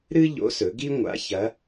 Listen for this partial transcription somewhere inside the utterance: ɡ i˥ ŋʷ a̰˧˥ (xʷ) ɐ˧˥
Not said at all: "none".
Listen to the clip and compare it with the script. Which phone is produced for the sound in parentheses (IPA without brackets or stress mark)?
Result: ç